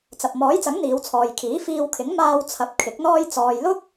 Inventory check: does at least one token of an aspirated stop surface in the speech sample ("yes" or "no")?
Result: yes